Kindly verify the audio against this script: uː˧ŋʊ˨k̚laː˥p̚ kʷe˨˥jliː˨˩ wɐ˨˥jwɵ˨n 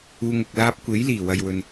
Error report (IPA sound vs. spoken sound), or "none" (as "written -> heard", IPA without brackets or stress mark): ɐ˨˥ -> ɐ˨